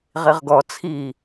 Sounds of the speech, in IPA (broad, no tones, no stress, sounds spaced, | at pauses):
ʁ i ʁ ɡ ɔ t͡sʰ i